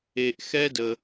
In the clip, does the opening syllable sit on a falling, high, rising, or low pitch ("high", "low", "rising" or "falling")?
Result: low